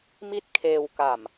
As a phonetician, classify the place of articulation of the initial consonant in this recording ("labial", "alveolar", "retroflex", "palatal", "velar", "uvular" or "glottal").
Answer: labial